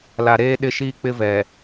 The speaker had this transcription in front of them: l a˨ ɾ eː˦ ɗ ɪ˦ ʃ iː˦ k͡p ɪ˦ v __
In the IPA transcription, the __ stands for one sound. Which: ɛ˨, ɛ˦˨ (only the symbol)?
ɛ˨